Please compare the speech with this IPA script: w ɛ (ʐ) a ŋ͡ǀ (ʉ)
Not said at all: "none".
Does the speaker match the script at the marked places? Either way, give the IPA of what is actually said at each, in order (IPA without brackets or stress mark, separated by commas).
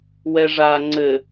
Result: ʐ, ɘ